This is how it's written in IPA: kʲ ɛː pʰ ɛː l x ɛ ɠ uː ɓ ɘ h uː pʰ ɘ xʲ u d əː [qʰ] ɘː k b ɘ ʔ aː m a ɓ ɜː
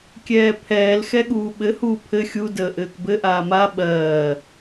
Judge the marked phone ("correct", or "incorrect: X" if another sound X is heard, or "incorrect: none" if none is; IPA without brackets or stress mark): incorrect: ʔ